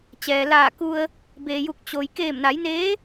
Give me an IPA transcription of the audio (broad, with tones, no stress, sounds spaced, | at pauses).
t͡ɕ ɛː˩ l aː˧˩ k u˧ ə̯ | b eː˩ j u˧˩ k̚ t͡ɕ o˩ j k eː˧˩ m n a˩˧ j n eː˧˥